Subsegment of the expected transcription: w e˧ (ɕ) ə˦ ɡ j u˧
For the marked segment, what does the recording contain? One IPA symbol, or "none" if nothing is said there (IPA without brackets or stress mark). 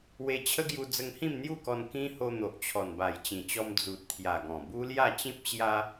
t͡ɕʰ